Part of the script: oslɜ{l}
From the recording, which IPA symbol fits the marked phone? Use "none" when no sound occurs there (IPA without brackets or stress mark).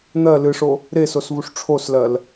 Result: l